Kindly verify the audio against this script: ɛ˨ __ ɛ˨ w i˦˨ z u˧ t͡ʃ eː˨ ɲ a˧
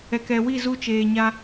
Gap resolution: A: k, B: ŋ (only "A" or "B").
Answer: A